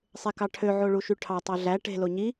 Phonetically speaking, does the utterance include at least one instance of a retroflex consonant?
yes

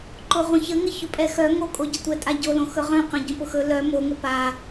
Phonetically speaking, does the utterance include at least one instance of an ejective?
yes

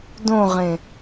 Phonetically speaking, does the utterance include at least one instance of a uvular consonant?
yes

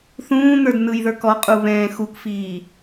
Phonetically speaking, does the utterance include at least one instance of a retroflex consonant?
no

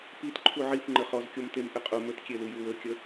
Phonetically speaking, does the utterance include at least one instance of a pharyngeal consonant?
yes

